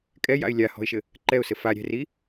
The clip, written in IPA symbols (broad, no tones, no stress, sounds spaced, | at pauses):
kʼ ɛ j a̰ ɪ̯ lʲ a h ɔ̤ ɪ̯ ʃ ɘ | ǃ ɛ ʊ̯ s ɘ f a ɾʲ ɛ̤ r i